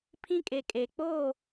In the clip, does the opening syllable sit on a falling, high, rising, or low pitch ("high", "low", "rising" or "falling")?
high